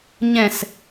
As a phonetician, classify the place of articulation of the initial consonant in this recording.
palatal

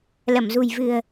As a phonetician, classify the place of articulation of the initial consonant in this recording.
alveolar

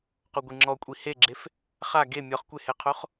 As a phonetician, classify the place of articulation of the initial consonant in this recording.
uvular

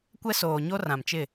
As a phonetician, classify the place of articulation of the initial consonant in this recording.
velar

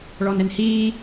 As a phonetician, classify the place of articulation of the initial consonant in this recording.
retroflex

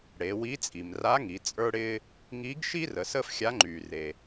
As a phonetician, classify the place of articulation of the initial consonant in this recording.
retroflex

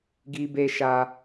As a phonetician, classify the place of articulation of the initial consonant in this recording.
velar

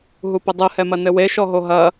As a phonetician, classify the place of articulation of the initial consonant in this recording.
glottal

